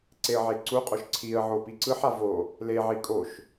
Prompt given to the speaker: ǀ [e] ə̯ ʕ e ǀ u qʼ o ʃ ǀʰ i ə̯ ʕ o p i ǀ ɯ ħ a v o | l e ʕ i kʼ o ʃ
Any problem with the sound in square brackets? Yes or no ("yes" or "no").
no